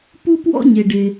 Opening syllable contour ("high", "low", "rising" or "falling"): high